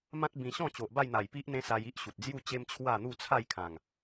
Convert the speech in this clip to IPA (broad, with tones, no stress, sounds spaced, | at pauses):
m ã˦ t̚ b ĩ˧ ɕ ɔ̃˥˧ t͡ɕ o˨ ʔ b a˥˧ j n̪ a˨˩ j p i˦ ʔ n̪ ẽ˦ s a˧ j i˦ ʔ ɕ u˨ t̚ d͡z j u˥˧ t͡ɕ e˦ m t͡ɕʰ w a˥˧ n̪ u˥˧ t͡sʰ a˥˧ j kʰ ã˨˩ ŋ